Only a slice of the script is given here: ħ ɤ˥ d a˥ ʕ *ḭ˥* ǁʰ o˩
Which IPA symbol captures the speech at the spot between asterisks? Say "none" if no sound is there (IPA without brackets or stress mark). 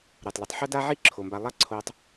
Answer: i˥